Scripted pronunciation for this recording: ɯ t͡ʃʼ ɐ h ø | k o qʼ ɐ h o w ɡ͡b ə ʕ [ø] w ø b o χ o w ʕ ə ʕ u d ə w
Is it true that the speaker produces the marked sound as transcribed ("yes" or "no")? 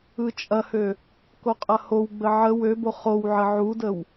no